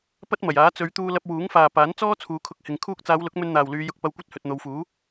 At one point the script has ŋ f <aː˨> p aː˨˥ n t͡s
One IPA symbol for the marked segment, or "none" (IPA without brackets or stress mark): aː˨